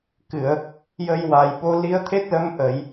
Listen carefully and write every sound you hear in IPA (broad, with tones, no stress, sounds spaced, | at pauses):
k ɨ˨˩˨ ə̯ | j ə˧ j w a˨˩ j ɓ o˧˥ l i˧˥ ə̯ t̪ʰ e˦˥ t̚ l ə˧˥ m ʔ ə˨˩˦ j